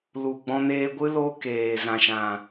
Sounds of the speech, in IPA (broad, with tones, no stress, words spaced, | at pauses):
lu˨ɡ͡bɔ̃˧neː˧ɡʷɨ˦ lo˦ keː˨ zã˨ʃã˨